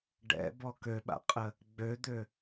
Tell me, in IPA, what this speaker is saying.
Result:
ɖ ɛ̰ b ɔ k ø ɓ a̰ qʼ ə | ɡ͡b ø d̪ ø

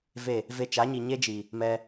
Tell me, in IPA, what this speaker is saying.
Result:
v e˦˨ | v e˧ t͡ʃ a˨˦ ɲ i˨ ɲ e˦ d͡ʒ i˨ | m ɛ˧

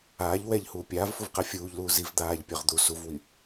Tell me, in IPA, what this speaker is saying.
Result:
aː ʎ w ɛ ʎ h uː pʲ aː v f u v q ɛ fʲ uː ʎ l uː z i v d̪ aː ʎ pʲ œ ʁ d̪ u s u v w i

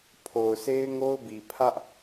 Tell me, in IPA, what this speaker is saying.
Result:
pʰ o˨ ʊ̯ s e˦ ɪ̯ ŋ o˦ ʊ̯ b i˨ pʰ ä˦ ʔ

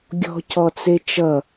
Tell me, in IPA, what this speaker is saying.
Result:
ɡʲ ɔ̤ c ɔ t͡s e t͡ʃ ʌ

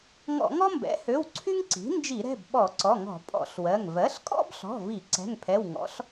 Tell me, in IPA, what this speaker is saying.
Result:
ŋ ɔ̰˧˩˧ ŋ ɔ˥ m b ɛ̰˩˥ h ø˩˧˩ w ǀʰ y˥ ŋ ǀ i̤˩˥ n d͡ʒ i˧˩˧ ɾ ɛ̤˩˧˩ b ɓ ɔ˧˩˧ ǀ ɔ˩˧˩ ŋ ɔ̤˧˩˧ pʼ ɔ̰˧˩˧ ɬ w ɜ˩˧˩ ŋ v ɜ˩˥ ɬ kʼ ɔ̰˥ b ɬ ɔ̤˩˧˩ v i˧˩˧ ǀ ɛ̤˩˧˩ ŋ pʰ ɛ˩˧˩ w ŋ ɔ̰˩˥ ɬ

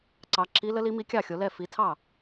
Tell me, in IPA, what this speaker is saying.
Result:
ǀ ɑ˨˦ ǁ i˨˦ l ə˨˦ l i˨˦ m i˨˦ kʲ ɑ˥˩ xʲ o˨˦ l ɛ˥˩ f i˨˦ tʰ ɑ˥˩

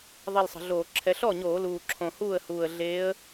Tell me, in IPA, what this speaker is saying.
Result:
ðˤ e˥˧ l sˤ ə̤˧˩˧ ɮ oː˧˩˧ ǁʰ ɛ˧˥ ɬ ɔ˥˩ ɲ oː˧˩˧ l uː˨˩ ǁʰ õ˨˩ h uː˥˩ ə̯ h uː˨˩ ə̯ ɮ eː˧˥ ə̯

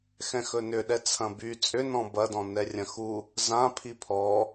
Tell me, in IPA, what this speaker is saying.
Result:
x ɛ̃ x ɵ n ʏ ɗ ɛ t͡sʰ ɐ̃ b y t͡sʼ ʏ n ɔ̃ b ɐ d ɔ̃ n ɛ rʲ ɐ̃ x u | z ã pʰ i pʰ ɔ

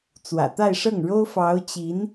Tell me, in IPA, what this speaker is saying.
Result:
t͡s w ä̰˨˩ t̪ a˥˧ ɪ̯ ʂ ɤ˥˩ ŋ ɻ o˥ ʊ̯ f ɑ˧˥ ʊ̯ t͡ɕ i˧˥ n

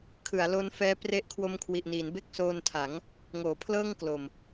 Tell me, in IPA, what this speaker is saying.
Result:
kʰ ɯ˩˦ a̯ l o˦˥ n f ɛː˦˥ p r e˥˩ ʔ kʰ w o˧ m kʰ w i˨˩ ʔ n iː˩˦ n b e˥˩ k̚ s oː˧ n tʰ a˩˦ ŋ | ŋ oː˩˦ pʰ l ɤː˥˩ ŋ k l o˨˩ m

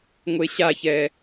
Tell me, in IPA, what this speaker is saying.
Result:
ŋʷ e ɕ a ç ɛ

